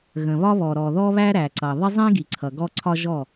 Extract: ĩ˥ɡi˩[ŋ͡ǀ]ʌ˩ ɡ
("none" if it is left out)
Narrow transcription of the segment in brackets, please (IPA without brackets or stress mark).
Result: ǀʰ